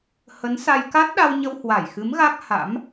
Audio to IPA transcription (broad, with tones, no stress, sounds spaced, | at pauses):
h ə˨˦ n s a˧ j k a˦˥ t̚ ɗ a˧ w ɲ ə˧ w h w a˧˩ j x ɨ˨˦ m ɣ a˦˥ k̚ h a̰˧˥ m